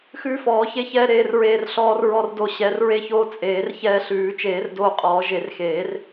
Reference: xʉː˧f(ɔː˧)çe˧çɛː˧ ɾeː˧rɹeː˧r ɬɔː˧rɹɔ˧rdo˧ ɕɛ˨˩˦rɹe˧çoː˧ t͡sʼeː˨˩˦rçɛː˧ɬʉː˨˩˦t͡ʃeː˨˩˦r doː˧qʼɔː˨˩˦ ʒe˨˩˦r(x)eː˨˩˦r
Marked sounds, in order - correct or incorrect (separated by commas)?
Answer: incorrect, correct